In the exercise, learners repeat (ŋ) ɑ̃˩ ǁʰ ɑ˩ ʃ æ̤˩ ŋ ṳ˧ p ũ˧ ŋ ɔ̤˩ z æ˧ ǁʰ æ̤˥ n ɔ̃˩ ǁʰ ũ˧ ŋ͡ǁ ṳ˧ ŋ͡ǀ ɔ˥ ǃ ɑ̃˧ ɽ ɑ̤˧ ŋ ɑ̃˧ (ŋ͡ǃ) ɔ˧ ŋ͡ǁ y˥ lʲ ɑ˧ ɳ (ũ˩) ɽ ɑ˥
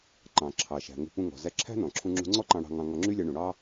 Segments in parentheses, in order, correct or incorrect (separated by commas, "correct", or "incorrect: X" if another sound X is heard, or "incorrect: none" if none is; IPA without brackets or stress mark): incorrect: ǃ, incorrect: ŋ, correct